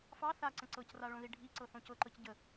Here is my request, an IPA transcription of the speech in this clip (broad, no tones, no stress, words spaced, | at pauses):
fɑ θaǀə̃ ǀɤcraɭõði ɖʱiǀɤ θõcɤǃɤc ɟə